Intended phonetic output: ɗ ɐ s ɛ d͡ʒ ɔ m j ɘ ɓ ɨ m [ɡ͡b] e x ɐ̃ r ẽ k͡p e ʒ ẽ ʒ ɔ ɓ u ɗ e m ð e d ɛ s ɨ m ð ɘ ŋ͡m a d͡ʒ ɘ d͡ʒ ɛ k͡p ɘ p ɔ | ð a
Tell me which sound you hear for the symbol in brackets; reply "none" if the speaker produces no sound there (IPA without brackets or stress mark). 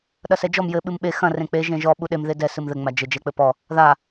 ɓ